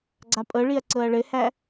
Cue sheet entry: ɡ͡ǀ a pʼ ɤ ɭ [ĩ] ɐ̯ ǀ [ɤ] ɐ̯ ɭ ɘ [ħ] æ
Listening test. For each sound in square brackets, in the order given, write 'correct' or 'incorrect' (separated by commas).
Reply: incorrect, correct, incorrect